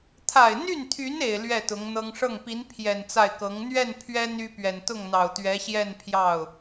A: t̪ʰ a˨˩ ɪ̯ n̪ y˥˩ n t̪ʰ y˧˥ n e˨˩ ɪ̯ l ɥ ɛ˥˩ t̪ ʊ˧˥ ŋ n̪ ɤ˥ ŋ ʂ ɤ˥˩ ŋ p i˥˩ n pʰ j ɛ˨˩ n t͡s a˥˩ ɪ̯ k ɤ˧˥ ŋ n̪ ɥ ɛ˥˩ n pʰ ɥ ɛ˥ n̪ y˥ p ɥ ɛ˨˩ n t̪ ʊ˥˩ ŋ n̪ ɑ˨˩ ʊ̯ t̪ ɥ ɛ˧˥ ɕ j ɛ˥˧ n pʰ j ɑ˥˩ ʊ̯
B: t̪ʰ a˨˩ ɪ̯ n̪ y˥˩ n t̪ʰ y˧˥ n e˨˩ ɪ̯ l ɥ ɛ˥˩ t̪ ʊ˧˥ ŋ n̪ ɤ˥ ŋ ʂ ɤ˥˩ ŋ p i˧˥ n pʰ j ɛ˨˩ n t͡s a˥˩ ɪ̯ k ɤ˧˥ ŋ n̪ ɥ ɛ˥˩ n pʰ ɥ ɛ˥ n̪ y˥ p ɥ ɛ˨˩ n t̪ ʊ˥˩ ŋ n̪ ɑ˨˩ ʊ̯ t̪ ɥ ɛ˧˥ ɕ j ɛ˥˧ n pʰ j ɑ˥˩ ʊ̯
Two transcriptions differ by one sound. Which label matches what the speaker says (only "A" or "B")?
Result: B